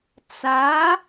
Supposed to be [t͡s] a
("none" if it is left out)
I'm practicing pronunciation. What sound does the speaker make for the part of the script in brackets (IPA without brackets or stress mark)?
t͡s